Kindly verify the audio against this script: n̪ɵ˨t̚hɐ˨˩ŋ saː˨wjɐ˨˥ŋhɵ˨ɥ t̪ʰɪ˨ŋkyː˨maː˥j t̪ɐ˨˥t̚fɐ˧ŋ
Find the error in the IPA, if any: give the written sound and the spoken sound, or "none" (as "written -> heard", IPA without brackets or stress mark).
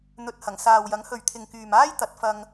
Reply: none